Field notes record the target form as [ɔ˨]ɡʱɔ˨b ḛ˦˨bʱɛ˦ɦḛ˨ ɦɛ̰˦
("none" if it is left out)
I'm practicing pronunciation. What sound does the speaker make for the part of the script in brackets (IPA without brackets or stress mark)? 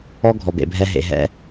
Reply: ɔ˦